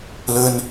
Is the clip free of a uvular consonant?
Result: yes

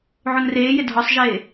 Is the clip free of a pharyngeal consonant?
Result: no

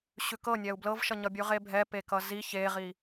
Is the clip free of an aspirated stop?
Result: yes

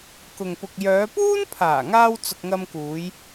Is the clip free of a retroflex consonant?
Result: yes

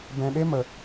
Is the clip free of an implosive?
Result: no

